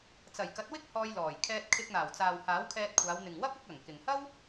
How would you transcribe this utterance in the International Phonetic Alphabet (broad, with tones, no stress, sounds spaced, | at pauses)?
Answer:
t͡s ɐ˨˩ j k ɐ˨˥ t̚ w ɪ˥ k̚ h ɔː˧ j l ɔː˨˩ j kʰ ɛː˧ t̚ kʰ ɪ˧ k̚ n̪ aː˨˩ w t͡s aː˨ w h aː˨˥ w kʰ ɛː˧ t̚ kʷʰ aː˨˧ w n̪ ɪ˨ ŋ w ɐ˥ p̚ ɐ˨˥ k̚ ɐ˨˩ ŋ k ɪ˨ ŋ h ɐ˥ w